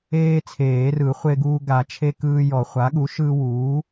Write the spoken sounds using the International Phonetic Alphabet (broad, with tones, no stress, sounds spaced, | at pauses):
eː˦ t͡sʰ eː˨˩˦ r ɯ˨˩˦ χʷ e˦ ɡ uː˦ ɡ a˨˩˦ t͡ʃʰ e˦ k ɯː˦ j ɔ˨˩˦ χʷ a˩˥ ɠ u˩˥ ʃ ɯː˦ w uː˩˥